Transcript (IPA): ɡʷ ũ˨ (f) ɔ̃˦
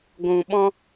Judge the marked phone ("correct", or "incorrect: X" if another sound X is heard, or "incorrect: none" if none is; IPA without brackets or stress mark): incorrect: ɓ